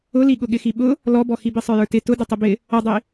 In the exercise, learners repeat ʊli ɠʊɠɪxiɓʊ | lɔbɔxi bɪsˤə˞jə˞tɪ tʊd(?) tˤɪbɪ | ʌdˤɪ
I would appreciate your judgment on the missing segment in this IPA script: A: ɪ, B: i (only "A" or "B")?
A